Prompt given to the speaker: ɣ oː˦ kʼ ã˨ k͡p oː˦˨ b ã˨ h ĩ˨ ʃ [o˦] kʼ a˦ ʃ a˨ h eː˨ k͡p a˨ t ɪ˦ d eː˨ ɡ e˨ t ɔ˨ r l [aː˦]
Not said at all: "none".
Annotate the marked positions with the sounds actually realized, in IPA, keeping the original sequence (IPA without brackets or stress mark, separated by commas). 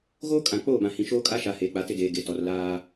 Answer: oː˦, aː˦